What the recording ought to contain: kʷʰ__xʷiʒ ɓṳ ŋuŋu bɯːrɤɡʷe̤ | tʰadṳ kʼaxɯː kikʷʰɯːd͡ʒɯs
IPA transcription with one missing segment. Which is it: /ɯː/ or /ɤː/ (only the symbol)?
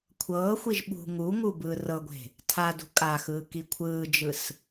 ɤː